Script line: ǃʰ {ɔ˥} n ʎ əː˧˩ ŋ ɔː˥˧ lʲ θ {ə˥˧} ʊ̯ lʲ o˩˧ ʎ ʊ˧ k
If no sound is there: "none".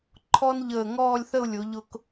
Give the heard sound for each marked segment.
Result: ɔ˥, ə˥˧

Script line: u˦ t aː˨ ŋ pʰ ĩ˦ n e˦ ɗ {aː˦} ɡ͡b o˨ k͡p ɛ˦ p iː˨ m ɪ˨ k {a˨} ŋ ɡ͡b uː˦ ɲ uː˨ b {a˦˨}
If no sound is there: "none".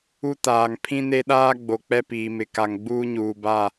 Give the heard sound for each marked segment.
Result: aː˦, a˨, a˦˨

